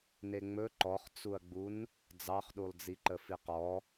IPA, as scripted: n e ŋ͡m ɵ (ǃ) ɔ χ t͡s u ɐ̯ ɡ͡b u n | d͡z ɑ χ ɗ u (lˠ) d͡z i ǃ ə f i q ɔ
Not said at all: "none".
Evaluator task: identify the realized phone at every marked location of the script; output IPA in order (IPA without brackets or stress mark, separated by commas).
ǃ, lˠ